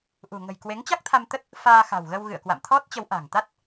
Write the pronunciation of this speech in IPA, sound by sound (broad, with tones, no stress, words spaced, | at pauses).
ʔṳ˨˩ŋə̤˨˩j kwe˨˦ŋt͡ɕa˦˥k̚t̪ʰa˧mt̪ə˦˥t̚ | faː˧xa̤˨˩wɣə˧w ɣɨ̰˧˨ə̯kwa̰˧˨mt̪ʰɔ˦˥t̚t͡ɕə˨˦w ʔa̤˨˩ŋ t̪a˦˥t̚